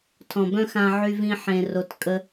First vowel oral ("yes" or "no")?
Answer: no